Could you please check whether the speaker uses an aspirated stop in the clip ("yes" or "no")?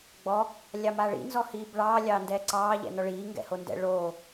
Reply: no